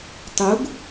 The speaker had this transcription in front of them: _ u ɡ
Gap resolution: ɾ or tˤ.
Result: tˤ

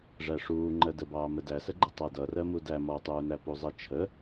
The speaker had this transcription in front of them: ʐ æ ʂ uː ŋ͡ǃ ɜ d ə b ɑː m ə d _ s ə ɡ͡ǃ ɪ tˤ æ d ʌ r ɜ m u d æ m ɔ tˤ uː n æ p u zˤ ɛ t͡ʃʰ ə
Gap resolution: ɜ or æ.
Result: æ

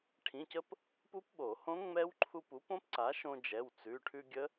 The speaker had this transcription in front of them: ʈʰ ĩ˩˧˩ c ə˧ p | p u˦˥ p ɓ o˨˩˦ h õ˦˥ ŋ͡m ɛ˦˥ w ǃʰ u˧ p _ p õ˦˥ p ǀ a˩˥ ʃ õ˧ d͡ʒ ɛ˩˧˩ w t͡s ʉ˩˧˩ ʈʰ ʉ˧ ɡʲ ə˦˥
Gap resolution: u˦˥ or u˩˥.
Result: u˩˥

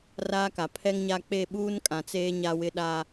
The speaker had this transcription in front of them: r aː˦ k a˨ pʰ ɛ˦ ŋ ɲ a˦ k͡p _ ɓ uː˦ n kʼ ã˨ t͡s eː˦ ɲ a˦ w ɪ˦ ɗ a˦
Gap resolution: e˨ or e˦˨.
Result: e˦˨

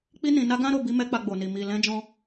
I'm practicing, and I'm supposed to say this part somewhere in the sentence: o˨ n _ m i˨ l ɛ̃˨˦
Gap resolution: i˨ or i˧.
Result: i˨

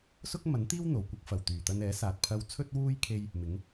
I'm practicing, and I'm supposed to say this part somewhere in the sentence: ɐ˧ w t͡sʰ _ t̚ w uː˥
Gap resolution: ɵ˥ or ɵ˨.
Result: ɵ˥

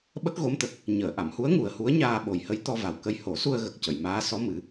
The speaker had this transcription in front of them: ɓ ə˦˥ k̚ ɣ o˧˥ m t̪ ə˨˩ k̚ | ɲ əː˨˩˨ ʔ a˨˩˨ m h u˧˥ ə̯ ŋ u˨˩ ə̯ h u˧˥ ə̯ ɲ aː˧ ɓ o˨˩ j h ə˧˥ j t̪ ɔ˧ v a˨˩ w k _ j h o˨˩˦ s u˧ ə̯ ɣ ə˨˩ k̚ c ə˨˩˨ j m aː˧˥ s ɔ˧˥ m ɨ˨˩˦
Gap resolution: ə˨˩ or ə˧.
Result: ə˧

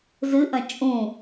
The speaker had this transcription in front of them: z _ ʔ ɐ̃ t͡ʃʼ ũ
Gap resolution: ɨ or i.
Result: ɨ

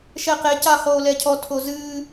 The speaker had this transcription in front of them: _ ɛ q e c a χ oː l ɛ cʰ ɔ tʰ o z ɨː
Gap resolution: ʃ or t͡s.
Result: ʃ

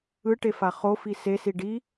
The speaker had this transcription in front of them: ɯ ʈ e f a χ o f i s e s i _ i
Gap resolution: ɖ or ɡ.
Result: ɖ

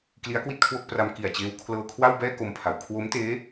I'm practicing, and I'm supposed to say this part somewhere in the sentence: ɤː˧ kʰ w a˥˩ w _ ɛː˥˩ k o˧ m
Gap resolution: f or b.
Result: b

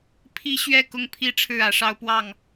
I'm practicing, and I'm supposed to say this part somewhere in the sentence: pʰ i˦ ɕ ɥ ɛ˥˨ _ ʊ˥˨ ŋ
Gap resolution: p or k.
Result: k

